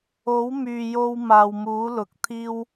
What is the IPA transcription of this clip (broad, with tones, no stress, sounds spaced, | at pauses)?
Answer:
o˨˥ w m yː˨ j o˧ w m aː˨ w m uː˨˥ l ʊ˨ k̚ t̪ʰ iː˥ w